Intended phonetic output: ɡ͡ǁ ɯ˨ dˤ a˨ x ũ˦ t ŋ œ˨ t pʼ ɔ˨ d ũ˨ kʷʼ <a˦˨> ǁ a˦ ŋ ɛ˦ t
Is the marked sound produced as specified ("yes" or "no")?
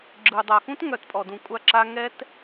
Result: yes